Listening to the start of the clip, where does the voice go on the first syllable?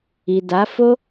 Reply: low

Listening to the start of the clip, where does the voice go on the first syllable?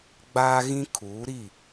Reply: high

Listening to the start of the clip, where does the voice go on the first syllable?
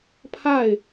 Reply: falling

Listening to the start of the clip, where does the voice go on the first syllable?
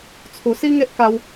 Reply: low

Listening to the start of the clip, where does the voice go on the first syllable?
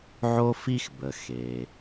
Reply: high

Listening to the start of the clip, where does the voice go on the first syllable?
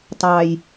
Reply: low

